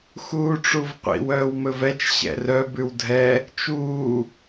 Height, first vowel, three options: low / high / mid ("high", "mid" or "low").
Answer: high